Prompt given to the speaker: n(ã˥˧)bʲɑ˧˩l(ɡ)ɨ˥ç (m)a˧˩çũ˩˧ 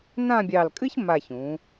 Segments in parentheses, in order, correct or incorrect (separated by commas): correct, incorrect, correct